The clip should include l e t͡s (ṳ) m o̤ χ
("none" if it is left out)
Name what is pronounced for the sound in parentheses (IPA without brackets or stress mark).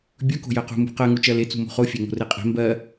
ṳ